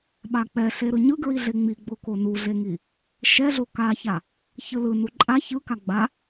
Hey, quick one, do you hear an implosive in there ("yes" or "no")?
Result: yes